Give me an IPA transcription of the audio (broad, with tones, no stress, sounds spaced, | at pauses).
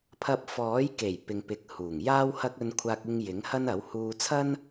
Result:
pʰ ɐ˧ p̚ f ɔː˨˥ j k e˨˩ j p ɪ˨ ŋ p ɪ˨˥ k̚ h uː˨˩ ŋ j aː˥ w h ɐ˥ k̚ ɵ˧ n kʷʰ aː˧ k̚ ɪ˧ ŋ j ɪ˨˥ ŋ h ɐ˥ n ɐ˨˥ w h uː˧ t͡sʰ ɐ˥ n